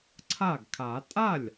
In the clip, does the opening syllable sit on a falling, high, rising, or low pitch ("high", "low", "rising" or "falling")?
falling